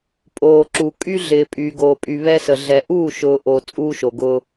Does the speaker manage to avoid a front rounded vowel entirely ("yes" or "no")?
no